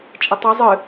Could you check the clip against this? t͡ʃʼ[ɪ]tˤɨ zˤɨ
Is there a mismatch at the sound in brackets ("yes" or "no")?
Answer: no